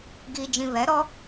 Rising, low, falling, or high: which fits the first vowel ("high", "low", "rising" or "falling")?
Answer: low